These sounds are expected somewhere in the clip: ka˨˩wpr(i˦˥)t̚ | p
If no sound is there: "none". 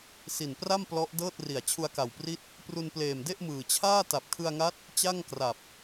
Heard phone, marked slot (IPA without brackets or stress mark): i˦˥